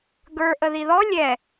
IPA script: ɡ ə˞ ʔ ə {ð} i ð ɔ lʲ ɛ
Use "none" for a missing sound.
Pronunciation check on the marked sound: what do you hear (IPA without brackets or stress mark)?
ð